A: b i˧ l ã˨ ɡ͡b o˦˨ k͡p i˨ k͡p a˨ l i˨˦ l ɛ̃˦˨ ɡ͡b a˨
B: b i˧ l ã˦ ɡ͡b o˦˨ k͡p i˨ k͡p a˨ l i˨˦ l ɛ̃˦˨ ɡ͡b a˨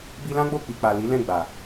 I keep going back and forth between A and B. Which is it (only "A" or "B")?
B